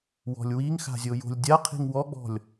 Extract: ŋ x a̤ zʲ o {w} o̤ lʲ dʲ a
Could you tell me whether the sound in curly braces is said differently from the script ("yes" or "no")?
yes